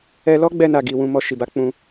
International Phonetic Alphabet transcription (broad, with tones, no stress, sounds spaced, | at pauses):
ɛ˧ l ɔ˦ ɡ͡b ɛ˧ n a˨ ɡ i˨ w ũ˧ m ɔ˧ ʃ i˨ b a˨˦ k͡p ũ˧